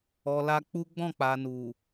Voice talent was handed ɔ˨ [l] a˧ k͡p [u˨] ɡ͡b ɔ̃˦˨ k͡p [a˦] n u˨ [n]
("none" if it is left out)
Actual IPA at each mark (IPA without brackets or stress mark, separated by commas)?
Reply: l, u˦, a˨, none